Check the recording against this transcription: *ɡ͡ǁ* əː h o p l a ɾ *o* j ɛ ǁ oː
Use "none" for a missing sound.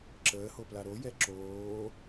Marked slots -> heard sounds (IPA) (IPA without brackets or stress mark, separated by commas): ǁ, o